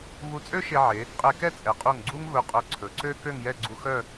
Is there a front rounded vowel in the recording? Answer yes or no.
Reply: yes